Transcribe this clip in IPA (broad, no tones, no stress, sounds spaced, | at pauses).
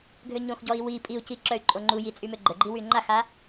ɡʱ ø ɲ õ x ɟ ɔ i̯ w i pʼ i u̯ c i ǁ œ y̯ ǃʼ o ŋ͡ǃ u j i t͡sʼ y m ø ɡ͡ǃ ə ɡ͡ǃ i w y ŋ͡ǃ a x a